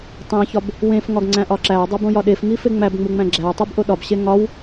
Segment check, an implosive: present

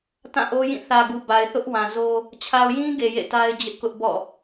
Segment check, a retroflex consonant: absent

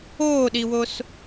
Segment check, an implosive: present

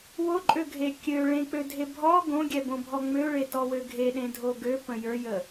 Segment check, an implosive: present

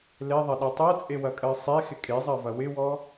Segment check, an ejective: present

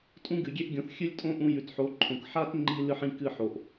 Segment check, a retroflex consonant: absent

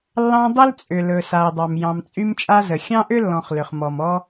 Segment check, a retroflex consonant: absent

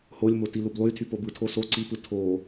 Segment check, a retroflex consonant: absent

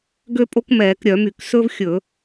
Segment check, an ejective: present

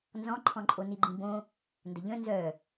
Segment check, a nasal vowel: present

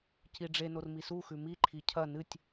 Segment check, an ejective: absent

